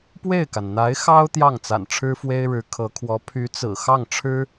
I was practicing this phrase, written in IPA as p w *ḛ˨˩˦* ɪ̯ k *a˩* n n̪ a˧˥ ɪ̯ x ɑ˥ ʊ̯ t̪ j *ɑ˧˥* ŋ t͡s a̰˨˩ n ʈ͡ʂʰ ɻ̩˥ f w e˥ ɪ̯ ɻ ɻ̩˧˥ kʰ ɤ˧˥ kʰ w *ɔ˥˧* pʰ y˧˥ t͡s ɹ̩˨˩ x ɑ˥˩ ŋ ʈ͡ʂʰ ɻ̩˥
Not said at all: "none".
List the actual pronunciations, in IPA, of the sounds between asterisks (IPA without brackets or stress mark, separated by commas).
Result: e˥˩, a˩, ɑ˥˩, ɔ˧˥